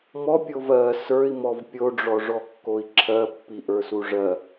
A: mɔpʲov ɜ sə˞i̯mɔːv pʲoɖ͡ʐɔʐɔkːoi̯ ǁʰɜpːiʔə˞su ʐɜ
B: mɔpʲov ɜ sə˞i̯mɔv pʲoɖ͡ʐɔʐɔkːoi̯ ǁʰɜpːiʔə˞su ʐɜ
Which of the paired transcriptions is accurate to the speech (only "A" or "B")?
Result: B